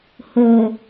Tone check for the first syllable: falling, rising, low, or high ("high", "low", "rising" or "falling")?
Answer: low